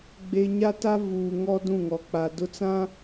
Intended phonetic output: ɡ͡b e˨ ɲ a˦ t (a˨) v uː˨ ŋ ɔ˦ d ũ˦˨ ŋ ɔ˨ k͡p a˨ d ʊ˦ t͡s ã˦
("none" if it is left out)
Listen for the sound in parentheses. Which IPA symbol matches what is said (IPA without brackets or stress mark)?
a˦